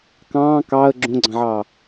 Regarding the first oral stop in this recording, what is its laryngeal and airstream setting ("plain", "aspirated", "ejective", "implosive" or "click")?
plain